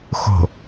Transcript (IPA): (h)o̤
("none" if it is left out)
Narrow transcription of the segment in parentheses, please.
x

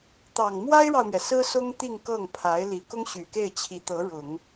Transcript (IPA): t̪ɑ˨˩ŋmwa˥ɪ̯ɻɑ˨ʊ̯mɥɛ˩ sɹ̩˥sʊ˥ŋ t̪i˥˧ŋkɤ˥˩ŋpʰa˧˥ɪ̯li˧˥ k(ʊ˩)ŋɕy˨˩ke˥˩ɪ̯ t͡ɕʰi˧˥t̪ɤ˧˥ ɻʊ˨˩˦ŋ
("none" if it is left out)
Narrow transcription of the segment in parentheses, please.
ʊ˥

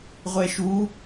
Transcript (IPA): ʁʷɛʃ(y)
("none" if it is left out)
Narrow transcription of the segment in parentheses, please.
u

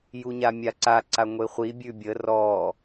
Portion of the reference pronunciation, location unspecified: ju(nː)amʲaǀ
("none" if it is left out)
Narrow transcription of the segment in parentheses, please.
ɲ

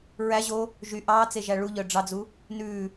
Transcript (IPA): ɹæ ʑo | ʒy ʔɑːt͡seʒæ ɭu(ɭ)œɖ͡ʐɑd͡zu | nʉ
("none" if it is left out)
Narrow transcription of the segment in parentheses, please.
ʎ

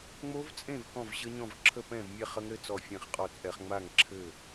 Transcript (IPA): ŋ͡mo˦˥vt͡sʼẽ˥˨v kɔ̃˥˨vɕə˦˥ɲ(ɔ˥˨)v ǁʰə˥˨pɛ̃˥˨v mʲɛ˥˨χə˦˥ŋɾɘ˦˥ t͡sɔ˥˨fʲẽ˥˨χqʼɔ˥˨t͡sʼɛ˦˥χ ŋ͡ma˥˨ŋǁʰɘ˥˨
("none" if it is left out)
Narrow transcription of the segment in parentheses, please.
ɔ̃˥˨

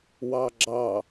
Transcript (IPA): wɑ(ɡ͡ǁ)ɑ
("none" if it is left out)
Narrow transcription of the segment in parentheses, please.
ɡ͡ǁ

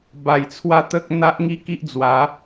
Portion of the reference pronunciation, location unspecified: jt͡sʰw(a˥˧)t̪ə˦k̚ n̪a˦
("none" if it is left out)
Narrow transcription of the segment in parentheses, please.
a˥˧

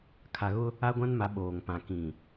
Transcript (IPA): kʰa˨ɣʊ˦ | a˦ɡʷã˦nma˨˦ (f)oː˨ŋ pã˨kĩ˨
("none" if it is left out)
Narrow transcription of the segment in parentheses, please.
ɓ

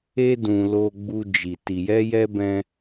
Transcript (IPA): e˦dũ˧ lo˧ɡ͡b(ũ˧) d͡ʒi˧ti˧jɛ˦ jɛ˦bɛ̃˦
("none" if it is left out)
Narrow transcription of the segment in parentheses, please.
u˧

